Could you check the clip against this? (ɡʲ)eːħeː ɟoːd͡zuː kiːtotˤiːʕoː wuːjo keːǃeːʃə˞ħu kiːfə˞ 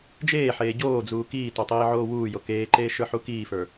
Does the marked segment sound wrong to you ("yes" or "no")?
yes